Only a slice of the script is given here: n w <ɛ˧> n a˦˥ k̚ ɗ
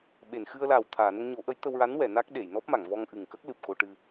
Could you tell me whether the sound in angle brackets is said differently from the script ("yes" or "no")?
yes